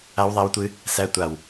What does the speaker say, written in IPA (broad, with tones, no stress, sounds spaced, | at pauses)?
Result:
a˦˥ w ðˤ æ˦˥ w tʷ ɨ˦˥ | s æ˦˥ tʷ a˧˩ w